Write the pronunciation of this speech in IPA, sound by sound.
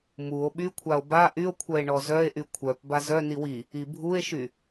m u o̯ ɓ y kʷʰ a o̯ b a ʔ y o̯ kʷʰ œ e̯ ɳ ɔ z œ e̯ ʔ y kʷʰ œ p b a z œ n i w i | i bʱ u e̯ ʃ y

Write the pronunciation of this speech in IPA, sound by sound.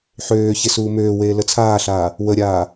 ħ øː ç e s uː m øː w eː l ə t͡sʰ aː ɬ aː | w ə ɾʲ aː

